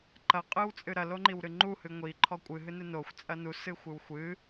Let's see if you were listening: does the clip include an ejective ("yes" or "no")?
yes